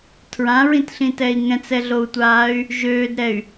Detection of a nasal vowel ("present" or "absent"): present